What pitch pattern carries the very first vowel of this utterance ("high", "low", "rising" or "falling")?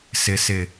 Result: low